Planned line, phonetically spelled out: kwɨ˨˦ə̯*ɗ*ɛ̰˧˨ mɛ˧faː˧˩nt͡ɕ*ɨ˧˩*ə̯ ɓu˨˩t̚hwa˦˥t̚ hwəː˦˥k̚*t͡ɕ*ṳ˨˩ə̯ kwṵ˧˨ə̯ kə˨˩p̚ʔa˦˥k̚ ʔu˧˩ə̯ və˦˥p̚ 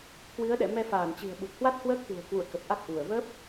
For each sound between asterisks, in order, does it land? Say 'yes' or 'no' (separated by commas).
yes, no, no